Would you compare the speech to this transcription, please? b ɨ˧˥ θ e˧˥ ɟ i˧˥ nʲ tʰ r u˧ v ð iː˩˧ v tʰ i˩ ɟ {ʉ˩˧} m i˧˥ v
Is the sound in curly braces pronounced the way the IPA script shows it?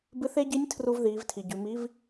yes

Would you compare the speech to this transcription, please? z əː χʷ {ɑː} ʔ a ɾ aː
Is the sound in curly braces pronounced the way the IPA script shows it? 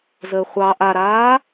yes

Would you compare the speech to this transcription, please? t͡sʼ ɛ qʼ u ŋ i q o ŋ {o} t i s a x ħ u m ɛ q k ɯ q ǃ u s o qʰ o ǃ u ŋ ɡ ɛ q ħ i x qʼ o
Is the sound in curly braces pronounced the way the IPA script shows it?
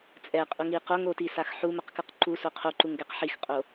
yes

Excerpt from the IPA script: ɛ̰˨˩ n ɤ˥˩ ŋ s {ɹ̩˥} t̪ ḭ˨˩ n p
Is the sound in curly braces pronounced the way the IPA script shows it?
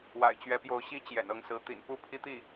no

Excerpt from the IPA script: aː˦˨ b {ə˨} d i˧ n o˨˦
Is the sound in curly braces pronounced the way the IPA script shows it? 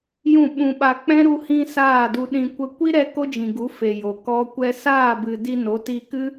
no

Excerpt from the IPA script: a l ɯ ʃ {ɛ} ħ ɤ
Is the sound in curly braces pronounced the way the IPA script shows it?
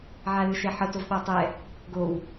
yes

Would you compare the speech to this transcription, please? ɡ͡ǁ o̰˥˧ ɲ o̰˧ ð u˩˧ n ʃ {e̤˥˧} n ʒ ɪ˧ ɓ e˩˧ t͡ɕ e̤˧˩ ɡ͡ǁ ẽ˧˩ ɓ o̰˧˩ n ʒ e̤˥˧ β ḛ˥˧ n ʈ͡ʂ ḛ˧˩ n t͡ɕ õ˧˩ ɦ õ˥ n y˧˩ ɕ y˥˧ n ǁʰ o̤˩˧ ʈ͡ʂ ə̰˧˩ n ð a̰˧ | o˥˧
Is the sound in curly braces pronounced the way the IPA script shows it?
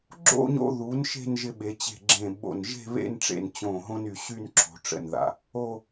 yes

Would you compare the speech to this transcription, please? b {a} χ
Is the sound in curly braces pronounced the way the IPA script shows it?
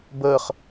no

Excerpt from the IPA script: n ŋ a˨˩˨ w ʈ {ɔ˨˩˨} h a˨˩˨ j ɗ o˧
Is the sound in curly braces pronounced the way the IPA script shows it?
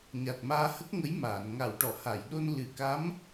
yes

